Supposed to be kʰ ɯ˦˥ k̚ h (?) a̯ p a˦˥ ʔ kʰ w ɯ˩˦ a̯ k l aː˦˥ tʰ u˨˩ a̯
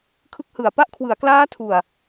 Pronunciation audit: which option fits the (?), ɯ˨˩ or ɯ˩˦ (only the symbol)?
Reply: ɯ˨˩